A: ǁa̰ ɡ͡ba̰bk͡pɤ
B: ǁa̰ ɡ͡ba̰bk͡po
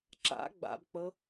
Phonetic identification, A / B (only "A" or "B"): A